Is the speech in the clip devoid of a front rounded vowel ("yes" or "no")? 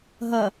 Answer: yes